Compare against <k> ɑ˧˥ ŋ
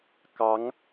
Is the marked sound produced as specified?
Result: yes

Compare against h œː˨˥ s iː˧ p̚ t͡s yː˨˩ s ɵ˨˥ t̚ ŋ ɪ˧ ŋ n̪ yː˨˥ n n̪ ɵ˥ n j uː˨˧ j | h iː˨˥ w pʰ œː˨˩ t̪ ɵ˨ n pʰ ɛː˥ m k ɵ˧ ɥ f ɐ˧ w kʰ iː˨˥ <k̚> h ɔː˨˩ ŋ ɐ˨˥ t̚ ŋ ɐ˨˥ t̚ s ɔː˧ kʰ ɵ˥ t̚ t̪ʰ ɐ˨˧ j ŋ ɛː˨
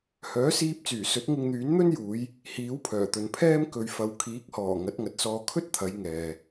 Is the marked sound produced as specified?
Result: yes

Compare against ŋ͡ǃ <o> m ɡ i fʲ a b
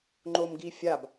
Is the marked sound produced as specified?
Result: yes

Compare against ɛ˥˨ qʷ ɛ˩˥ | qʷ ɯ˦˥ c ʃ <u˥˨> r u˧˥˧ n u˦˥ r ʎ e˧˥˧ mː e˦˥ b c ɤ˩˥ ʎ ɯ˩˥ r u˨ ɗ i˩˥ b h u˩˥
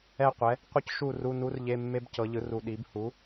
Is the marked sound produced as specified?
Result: yes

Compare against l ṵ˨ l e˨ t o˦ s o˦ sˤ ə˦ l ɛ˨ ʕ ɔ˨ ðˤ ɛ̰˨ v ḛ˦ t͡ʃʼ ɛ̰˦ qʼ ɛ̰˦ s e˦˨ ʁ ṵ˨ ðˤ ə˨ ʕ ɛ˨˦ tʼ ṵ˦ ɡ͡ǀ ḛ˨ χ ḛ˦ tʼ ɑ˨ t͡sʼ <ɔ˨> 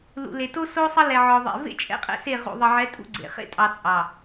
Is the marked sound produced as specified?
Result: no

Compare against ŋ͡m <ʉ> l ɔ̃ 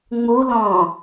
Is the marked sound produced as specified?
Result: no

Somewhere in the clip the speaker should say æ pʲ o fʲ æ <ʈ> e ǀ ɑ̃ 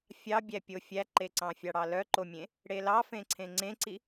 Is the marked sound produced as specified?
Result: no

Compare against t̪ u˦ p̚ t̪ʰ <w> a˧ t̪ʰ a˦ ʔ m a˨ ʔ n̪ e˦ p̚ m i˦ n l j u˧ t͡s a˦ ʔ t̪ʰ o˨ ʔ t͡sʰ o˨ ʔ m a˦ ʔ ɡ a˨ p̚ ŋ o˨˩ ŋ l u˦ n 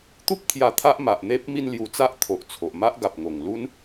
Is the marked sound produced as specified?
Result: no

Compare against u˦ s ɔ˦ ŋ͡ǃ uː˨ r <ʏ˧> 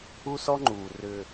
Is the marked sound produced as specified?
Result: yes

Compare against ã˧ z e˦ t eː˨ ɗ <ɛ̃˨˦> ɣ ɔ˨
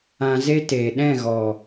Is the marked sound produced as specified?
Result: no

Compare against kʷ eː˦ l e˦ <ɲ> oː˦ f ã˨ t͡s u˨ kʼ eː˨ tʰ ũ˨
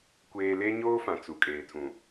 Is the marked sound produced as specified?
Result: yes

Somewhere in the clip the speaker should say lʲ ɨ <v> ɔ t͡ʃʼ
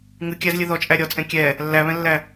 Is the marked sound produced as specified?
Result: no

